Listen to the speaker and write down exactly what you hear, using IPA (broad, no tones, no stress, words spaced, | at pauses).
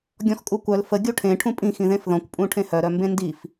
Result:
ɡʲɔ̃xkʼukʷœl fə ɡʲuʈʰẽ ʈʰũpʼĩ xĩðẽfðɔ̃kʷ pʼũʈʰẽhœ ɾœmbẽndif